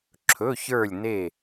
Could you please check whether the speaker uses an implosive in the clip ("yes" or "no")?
no